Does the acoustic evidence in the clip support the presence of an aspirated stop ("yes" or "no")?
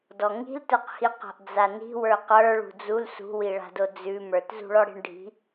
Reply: no